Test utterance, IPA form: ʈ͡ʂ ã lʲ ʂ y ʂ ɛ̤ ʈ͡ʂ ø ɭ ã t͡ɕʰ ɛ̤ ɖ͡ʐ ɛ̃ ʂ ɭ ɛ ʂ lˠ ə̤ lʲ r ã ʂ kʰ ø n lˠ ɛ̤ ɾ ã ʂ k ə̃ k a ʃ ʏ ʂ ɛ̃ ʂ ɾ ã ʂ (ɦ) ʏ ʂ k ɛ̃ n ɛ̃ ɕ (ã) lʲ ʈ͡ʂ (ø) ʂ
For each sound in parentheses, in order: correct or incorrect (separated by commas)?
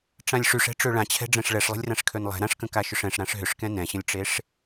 correct, incorrect, incorrect